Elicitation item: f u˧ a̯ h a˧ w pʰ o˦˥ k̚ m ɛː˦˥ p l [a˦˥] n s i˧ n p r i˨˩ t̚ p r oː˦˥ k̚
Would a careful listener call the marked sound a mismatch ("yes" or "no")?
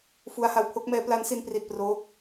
no